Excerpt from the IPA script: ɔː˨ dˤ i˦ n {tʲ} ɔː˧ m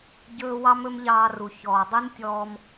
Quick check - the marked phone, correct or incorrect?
correct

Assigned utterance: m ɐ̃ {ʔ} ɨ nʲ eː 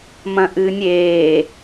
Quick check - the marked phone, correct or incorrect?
correct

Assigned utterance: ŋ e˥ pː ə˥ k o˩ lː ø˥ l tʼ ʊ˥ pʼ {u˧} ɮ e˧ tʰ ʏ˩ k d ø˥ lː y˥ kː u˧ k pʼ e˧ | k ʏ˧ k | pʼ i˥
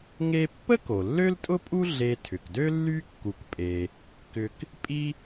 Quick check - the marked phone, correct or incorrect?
incorrect: u˥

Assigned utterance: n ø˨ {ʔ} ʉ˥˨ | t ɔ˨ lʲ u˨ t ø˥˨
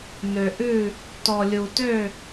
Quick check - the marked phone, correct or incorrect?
correct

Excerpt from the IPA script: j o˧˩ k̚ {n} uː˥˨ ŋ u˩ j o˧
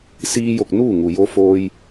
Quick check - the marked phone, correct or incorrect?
correct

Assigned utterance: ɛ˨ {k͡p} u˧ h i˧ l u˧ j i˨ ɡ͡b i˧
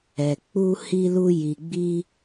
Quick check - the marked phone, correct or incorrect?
correct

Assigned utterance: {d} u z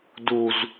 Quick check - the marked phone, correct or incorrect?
correct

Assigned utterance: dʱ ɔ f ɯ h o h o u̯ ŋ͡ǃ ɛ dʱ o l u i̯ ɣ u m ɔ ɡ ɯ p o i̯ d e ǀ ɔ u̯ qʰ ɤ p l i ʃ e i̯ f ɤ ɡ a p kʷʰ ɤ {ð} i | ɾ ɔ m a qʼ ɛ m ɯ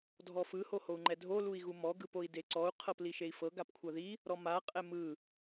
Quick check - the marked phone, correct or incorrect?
correct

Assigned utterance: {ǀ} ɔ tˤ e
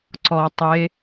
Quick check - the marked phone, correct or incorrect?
correct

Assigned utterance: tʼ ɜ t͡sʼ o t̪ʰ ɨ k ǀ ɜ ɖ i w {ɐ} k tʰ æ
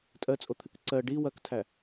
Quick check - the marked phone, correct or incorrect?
correct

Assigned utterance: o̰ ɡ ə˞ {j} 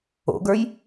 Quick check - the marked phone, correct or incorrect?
correct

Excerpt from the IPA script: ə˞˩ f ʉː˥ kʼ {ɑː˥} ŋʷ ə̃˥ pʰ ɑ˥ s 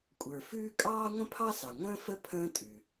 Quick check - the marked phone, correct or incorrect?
correct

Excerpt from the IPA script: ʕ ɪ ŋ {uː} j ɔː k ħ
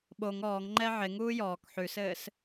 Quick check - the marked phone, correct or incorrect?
correct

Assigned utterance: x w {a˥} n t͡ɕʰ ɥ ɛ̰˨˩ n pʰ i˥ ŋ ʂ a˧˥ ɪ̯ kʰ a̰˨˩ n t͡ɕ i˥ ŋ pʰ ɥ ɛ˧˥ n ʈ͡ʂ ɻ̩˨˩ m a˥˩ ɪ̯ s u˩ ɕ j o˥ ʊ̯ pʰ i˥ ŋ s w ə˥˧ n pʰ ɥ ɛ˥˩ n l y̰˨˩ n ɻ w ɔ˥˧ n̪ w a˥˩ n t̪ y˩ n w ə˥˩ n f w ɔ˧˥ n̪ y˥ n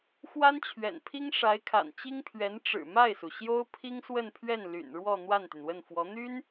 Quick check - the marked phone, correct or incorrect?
correct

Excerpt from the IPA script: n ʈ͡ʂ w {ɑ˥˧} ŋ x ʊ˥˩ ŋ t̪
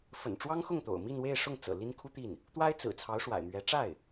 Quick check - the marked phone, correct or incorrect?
incorrect: ɑ˥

